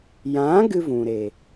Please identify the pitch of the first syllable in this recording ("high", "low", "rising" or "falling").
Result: rising